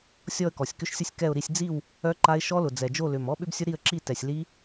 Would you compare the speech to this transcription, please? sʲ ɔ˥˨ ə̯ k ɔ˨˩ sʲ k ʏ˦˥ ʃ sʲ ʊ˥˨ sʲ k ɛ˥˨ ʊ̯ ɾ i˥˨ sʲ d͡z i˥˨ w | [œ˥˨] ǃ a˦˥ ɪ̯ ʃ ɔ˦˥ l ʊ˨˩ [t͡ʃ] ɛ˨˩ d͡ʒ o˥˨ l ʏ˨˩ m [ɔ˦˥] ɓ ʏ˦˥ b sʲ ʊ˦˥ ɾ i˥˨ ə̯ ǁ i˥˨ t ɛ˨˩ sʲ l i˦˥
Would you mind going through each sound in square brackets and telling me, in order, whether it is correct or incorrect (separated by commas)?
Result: incorrect, incorrect, correct